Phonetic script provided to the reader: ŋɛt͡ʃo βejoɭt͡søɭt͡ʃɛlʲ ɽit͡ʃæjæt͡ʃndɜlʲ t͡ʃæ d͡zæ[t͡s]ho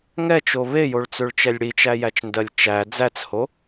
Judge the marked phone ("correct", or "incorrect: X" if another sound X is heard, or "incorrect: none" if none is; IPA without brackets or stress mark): correct